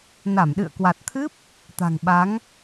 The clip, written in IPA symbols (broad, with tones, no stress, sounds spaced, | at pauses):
n a˧˩ m ɗ ɨ̰˧˨ ə̯ k w a˨˩ t̚ t̪ʰ ɨ˦˥ p̚ | t̪ a̤˨˩ ŋ ɓ a˨˦ ŋ